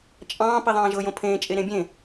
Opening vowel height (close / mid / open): open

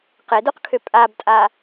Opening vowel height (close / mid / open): mid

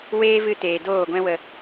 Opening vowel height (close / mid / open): mid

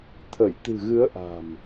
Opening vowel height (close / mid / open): mid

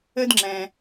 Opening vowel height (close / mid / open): mid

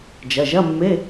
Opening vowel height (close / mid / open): open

